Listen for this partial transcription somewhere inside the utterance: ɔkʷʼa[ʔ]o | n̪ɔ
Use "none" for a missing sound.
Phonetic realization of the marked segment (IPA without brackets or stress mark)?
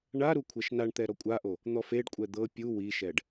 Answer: ʔ